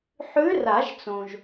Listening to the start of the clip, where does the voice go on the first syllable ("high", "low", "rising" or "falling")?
rising